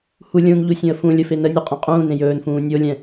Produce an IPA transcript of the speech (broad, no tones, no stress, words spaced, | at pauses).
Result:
hu lʲũnʎu sʲũə̯fũlʲə fenənʲu qʼẽqʼũːnẽ jɵːnfũː nʲolʲɛ̃